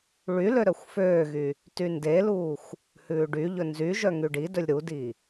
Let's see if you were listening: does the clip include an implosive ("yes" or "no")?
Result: no